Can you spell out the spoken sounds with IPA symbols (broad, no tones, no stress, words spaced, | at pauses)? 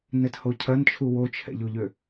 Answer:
nɛthocʰɐnt͡ʃʰu wot͡ʃʰɛ̰ʎoʎø